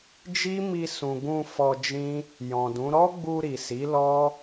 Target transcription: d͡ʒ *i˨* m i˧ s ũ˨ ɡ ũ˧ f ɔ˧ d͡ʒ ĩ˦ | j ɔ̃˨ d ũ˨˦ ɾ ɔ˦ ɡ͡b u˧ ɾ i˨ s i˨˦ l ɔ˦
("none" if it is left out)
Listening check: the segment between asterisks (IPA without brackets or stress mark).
i˦